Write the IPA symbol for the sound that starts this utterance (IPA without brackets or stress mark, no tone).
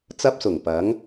t͡s